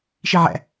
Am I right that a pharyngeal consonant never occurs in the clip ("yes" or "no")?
no